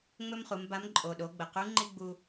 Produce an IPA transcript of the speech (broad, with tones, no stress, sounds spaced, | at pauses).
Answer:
ŋ͡m ɵ˥ m χ u˩˧ m b a˧˥ m ǃʼ o˩ ɗ o˩˧ ɡ͡b ə˩ q u˧˥ ŋ͡ǃ i˥ ɡ͡b u˧